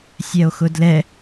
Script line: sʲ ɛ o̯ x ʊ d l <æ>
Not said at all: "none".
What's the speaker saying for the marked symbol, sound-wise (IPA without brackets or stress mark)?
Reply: ɛ